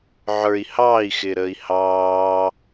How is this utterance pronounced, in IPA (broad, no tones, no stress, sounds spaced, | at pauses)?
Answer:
ʕ ə˞ i̯ h ɑː i̯ x ɪː ɾ əː i̯ h ɑː